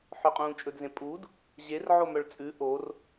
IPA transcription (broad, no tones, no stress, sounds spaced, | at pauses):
ħ ɵ qʼ ũː t͡ʃʼ ɵ d z ẽ pʼ u d | ʑ e r ʕ o m œ ɭ t͡sʼ ʉ ʔ o r